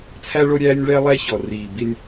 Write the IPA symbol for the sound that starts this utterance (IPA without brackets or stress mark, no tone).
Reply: t͡sʰ